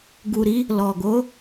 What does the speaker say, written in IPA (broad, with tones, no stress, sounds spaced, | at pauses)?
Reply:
ɡ u˨ ɾ i˨˦ | l ɔ˨ ɡ o˨˦